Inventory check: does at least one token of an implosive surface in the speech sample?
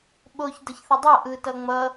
yes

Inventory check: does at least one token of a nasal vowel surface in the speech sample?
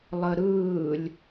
no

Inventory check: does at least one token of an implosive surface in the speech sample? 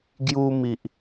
no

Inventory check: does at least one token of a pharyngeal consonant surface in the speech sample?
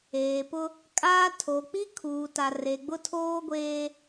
no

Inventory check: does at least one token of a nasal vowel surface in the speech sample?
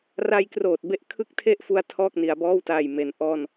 no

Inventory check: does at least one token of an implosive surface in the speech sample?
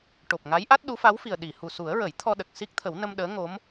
yes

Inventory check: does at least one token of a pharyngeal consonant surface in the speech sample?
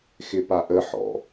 yes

